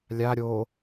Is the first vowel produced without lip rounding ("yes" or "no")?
yes